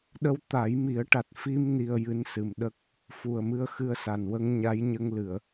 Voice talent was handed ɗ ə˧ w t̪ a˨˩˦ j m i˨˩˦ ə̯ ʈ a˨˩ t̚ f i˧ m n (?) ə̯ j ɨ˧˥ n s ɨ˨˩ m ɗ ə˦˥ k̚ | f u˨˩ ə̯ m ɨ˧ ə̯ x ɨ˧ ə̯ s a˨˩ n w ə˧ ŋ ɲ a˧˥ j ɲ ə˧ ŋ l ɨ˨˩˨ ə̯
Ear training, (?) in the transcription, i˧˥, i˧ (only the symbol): i˧